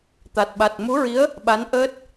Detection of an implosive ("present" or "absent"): present